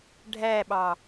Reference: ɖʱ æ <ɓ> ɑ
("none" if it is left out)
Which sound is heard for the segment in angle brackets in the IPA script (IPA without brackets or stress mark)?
ɓ